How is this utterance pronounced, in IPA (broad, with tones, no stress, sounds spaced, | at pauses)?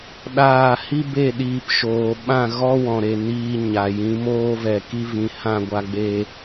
ɗ aː˦˨ h i˦ b e˦˨ ɗ iː˧ p ʃ oː˨ ɓ ã˦˨ ɣ ɔ˦ w ɔ̃˨ ɾ e˨ n iː˧ ɲ a˨ j ĩ˨˦ m oː˧ v ɛ˨ k i˧ v ĩ˨ h ã˦˨ ɡʷ a˧ ɡ͡b e˧